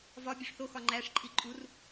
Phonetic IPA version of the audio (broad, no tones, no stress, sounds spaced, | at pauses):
v ɒ bʲ o ʂ θ o x ɒ ŋ͡ǃ æ ʂ ǃʼ i ǃʼ u r